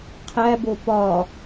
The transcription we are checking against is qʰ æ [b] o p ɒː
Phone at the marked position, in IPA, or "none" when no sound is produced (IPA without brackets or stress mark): b